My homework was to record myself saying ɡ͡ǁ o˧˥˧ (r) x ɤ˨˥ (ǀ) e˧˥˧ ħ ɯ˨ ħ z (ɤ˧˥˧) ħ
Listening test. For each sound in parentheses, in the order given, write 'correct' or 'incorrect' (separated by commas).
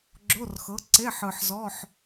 correct, correct, incorrect